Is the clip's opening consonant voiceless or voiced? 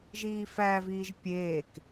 voiced